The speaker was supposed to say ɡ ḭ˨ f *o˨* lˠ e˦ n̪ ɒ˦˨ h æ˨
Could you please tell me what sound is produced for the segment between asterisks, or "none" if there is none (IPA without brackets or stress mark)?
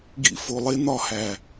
o˨